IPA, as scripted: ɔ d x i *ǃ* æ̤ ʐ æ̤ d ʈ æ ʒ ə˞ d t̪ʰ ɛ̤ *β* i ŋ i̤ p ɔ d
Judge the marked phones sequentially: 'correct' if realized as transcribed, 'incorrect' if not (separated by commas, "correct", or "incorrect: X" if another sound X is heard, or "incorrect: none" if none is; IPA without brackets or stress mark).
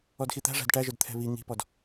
incorrect: t̪, correct